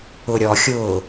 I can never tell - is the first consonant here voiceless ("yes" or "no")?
no